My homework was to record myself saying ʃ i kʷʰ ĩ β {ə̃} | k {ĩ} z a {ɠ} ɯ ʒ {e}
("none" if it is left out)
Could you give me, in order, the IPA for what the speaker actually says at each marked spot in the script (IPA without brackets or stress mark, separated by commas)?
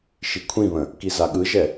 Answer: ə̃, i, ɠ, ɛ